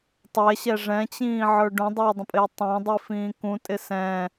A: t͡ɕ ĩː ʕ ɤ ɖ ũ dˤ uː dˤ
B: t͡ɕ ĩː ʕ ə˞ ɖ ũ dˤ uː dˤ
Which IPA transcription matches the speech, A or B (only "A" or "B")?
B